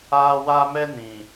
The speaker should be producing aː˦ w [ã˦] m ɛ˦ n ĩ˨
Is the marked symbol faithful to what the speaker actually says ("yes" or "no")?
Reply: no